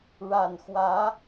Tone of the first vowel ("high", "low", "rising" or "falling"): low